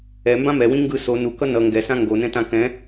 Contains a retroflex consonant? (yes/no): no